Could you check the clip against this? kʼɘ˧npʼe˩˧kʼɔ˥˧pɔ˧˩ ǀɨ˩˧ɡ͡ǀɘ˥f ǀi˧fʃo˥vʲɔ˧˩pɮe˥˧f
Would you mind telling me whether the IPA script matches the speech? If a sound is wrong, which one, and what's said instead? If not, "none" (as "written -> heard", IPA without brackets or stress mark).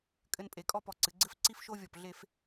i˧ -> i˥